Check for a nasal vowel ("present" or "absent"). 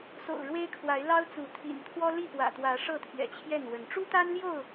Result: absent